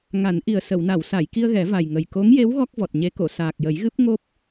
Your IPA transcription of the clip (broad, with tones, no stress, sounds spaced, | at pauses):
ŋ a˨˩˦ n ʔ i˨˩ ə̯ s ə˨˩˨ w n a˨˩˨ w s a˨˩˨ j k i˧ ə̯ ɣ ɛ˨˩˦ v a˨˩ j ŋ ə˨˩ j k o˧˥ ŋ j e˧˥ w ɣ ɔ˦˥ k̚ v ɔ˨˩ t̚ ɲ e˧˥ k o˨˩˨ s aː˨˩ k̚ j ə˨˩˦ j ɣ ɨ˦˥ p̚ ŋ o˦˥ p̚